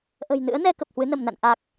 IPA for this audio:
ʔə̤˨˩jnɨ̰˧˥ə̯nɛ˧ kə˨˩p̚hwɨ˨˦nə˧˩mna̰˧˨n ʔa˨˩k̚

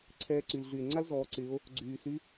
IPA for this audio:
ǀʰɛː˧ǀy˩lɮy˩e̯ ŋ͡ǀa˥lzɔː˩˧ǀɪː˩˧o̯ | ɡ͡ǀyː˩sy˧˥

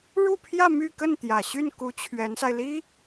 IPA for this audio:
ɻu˥˧pʰjä˥˧ my˥˧kə˥˩n t̪jä˨˩ɕy˥˩nku˧˥ t͡ɕʰɥɛ˧˥nsa˧ɪ̯li˥

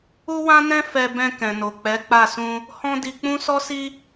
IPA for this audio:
u˦wã˦nɛ̃˦ fɛ˧ bɛ̃˧ kɛ̃˨no˨k͡pɛ˨˦k͡pa˦˨ sũ˧ | hɔ̃˦di˧ k͡pũ˦sɔ˦si˦

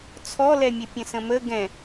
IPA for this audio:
t͡sʰɔlɛmʲɘ pʲə̃sə̃mə ɡɛ̃

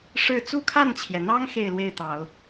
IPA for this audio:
ʂɻ̩˥˧ t͡su˥˧kʰa˥˩nt͡ɕʰjɛ˩n̪ɑ˥ŋ xe˥˧ɪ̯lwe˥˩ɪ̯t̪ɑ˨˩˦ʊ̯

